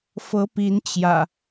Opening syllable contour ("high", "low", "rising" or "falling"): rising